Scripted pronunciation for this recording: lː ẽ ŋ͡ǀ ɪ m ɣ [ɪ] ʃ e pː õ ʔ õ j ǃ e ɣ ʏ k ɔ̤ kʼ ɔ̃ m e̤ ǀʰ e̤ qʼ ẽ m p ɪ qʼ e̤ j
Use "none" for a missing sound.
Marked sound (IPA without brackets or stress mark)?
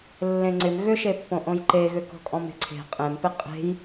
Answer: ʏ